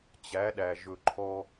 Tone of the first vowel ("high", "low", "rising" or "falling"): rising